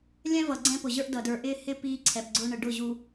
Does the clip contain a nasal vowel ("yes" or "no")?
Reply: yes